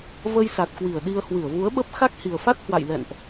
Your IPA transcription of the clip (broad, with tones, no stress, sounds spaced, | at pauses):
v ə˧ j s a˨˩ t̚ k w i˧˩ ə̯ ɗ i˧ ə̯ h w ɨ˧˩ ə̯ v u˨˦ ə̯ ɓ ə˦˥ p̚ x a˦˥ k̚ h i˨˩ ə̯ f a˦˥ t̚ h w a̰˧˨ j l ɛ̰˧˨ n ʔ